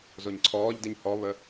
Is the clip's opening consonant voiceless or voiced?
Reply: voiced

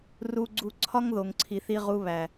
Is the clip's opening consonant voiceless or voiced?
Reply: voiced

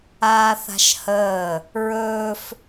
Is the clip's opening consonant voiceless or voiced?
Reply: voiceless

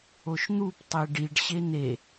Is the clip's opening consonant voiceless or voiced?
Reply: voiceless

